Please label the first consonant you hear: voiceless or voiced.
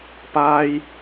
voiceless